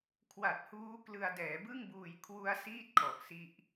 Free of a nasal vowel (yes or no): yes